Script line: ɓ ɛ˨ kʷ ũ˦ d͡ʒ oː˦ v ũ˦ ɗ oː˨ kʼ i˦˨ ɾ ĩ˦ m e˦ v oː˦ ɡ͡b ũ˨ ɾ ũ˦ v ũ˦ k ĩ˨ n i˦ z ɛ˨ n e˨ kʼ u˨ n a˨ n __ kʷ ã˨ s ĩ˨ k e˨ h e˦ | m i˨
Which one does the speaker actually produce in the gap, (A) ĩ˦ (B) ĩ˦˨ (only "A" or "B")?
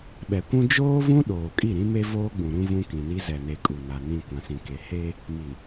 B